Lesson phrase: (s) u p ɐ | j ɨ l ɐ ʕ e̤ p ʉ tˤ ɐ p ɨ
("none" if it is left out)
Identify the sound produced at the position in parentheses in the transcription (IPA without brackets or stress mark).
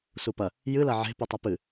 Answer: s